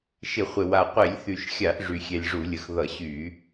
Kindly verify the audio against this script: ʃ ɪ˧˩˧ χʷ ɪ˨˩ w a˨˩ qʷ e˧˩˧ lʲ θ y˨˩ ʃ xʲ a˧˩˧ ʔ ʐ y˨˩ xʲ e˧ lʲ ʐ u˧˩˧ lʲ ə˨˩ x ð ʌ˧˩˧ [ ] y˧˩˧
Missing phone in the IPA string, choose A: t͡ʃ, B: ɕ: B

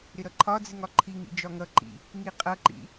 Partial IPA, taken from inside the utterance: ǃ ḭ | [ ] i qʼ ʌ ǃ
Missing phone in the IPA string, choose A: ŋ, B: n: A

